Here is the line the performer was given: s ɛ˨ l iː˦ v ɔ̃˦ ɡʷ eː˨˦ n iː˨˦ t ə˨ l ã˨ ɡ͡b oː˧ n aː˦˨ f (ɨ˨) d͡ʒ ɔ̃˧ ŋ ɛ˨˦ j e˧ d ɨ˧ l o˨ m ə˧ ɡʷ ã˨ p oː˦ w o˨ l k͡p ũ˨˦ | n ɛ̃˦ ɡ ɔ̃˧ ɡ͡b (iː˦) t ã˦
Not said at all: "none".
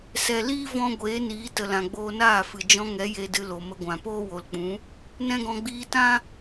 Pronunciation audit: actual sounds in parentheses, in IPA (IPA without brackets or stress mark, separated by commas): ɨ˨, iː˧